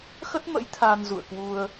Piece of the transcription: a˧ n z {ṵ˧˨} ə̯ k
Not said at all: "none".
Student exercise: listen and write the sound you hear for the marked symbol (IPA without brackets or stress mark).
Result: ṵ˧˨